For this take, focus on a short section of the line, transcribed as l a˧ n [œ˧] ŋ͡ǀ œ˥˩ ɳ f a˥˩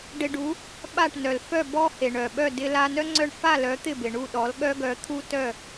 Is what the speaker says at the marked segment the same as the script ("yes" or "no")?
no